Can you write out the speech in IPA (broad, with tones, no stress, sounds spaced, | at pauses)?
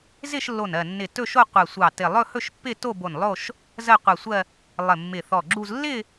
z ɪ˥˧ ʃ lː o˧˩ n ɜ˧˩ nː ɪ˧˩ t ɵ˥˧ ʃ o˥˧ qʷ ɜ˧˩ sʷ ɑ˧˩ t ɪ˧˩ lˠ ɵ˥˧ h ɵ˥˧ ʃ pː ɪ˥˧ t o˥˧ b o˧˩ n lˠ o˥˧ ʃ | z ɜ˥˧ qʷ ɜ˧˩ sʷ ɜ˥˧ | lˠ ɪ˧˩ mː ɪ˧˩ θ ɔ˧˩ ɡ͡ǁ u˥˧ z lː ɪ˥˧